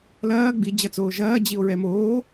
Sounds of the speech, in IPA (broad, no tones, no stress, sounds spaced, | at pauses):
l ɐː ɡ͡b i d͡ʑ ɐ t͡s oː ʒ ɐː d͡ʑ i o̯ ɹ ɛ m oː